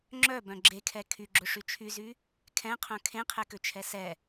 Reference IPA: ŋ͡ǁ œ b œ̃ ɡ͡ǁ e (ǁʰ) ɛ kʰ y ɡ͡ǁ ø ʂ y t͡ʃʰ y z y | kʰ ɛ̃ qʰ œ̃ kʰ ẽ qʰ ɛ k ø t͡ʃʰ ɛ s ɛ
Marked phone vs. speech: incorrect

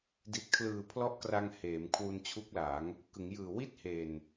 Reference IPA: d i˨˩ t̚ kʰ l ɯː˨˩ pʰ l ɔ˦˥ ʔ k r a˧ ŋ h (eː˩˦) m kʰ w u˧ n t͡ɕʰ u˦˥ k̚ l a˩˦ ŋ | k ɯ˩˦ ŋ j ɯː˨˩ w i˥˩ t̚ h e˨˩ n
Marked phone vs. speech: correct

